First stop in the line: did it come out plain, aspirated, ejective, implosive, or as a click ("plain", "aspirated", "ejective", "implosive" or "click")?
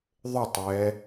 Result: plain